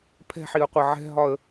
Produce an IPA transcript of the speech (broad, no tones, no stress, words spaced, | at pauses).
pʰɛ̤ħiə̯qʷɐ ʕɛ̤ɦɒə̯